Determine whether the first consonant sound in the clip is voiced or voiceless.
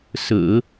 voiceless